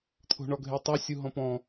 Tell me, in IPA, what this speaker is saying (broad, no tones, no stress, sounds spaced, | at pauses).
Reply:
t̪ʰ o̤ ɳ ɔ ɡʱ e tˤ o sʲ u ɦ ɔ̃ p ɔ̃